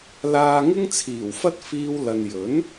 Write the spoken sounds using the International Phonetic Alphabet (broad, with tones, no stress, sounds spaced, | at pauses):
l aː˧ ŋ ɪ˥ ŋ t͡sʰ iː˨˩ w f ɐ˥ t̚ f iː˥ w l ɐ˧ n j ɵ˨˥ n